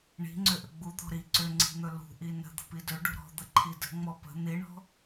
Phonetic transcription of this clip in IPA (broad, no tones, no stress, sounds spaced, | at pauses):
ɳ i̤ ŋ͡ǀ ʏ ʔ ə ɡ͡b u d̪ ɔ̤ ɾ i ǀ ʏ ŋ͡ǀ i̤ n̪ ɵ l ṳ ʔ i n ə̤ d̪ ə̤ p i d ɵ ɖ ṳ ɾ ɔ̤ d̪ ə ǃʰ i d ə̤ ŋ͡m ɔ p ə̤ n̪ i ɳ ɔ̤